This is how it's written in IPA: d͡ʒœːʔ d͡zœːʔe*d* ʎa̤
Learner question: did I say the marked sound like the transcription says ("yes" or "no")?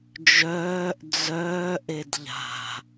yes